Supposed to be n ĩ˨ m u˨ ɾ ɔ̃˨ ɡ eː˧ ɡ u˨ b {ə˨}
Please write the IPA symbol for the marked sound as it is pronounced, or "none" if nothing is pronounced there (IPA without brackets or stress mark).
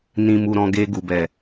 ɛ˨